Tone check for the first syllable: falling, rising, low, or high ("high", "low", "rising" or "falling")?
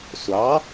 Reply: rising